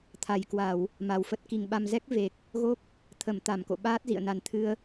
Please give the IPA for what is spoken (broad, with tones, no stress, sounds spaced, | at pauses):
t̪ʰ a˨˩ j k w a˧˩˨ w | m a˨˩ w f ə˦˥ t̚ k i˨˩ ŋ ɓ a˧ m z ɛ˦˥ k̚ v e˨˩ k̚ | ɣ o˦˥ k̚ | t̪ʰ ə˧˩ m t̪ a˧˩ m k o̰˧˨ ɓ aː˦˥ t̚ z ḭ˧˨ ə̯ n a˨˩ n t̪ʰ ɨ˧ ə̯